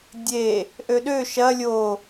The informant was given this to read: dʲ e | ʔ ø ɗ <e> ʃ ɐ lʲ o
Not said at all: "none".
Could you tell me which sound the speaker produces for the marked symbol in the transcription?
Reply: ø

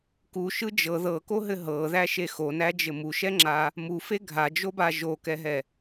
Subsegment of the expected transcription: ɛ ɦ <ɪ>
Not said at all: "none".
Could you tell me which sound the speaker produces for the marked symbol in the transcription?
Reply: ɛ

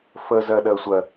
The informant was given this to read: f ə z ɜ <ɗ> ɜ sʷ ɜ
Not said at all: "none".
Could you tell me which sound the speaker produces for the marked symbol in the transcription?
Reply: ɗ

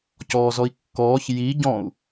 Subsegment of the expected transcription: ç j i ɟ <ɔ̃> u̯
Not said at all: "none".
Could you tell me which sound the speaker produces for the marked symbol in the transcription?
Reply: ɔ̃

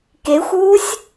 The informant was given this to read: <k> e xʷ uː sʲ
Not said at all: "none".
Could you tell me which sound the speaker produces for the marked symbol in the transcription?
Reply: k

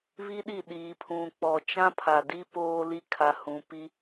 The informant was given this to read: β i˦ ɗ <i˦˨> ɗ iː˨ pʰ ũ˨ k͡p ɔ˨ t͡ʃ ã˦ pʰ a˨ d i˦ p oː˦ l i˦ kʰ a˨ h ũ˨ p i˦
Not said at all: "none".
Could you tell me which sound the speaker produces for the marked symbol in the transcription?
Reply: i˦˨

